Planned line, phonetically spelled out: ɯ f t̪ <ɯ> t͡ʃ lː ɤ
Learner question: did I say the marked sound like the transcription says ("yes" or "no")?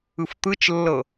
yes